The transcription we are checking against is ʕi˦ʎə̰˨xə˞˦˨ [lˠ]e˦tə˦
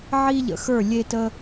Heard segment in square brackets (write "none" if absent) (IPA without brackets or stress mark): lʲ